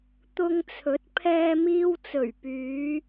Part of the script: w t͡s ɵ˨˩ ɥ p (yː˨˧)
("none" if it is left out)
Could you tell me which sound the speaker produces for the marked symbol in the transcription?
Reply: yː˨˧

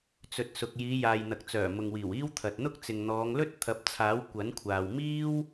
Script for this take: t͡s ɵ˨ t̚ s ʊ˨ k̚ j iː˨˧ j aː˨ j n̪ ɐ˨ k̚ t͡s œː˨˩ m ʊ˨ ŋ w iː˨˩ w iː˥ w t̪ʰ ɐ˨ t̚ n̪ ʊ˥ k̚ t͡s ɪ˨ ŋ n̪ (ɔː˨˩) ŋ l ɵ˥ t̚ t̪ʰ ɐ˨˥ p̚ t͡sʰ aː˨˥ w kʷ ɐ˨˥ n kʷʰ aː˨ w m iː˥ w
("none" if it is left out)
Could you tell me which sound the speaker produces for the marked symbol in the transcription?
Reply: ɔː˨˧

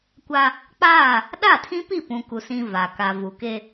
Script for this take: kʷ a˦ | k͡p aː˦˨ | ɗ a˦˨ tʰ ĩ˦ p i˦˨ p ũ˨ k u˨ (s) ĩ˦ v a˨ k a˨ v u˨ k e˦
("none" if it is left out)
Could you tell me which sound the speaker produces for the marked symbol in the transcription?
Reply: s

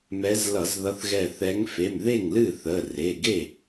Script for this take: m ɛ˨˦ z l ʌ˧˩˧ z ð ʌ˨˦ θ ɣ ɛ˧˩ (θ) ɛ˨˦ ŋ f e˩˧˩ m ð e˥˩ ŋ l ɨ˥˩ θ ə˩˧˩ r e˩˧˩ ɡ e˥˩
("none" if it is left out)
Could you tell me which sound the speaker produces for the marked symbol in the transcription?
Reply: θ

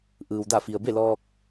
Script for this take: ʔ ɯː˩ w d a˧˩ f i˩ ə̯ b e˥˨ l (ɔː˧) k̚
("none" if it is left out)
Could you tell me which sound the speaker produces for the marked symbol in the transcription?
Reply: ɔː˧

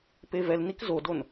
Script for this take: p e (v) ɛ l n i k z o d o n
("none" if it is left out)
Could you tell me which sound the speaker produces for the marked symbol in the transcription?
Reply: v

